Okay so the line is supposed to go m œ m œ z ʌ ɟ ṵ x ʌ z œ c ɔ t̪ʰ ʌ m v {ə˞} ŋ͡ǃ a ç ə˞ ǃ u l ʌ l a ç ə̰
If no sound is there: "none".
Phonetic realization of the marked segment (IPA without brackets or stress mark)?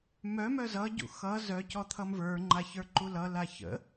ə˞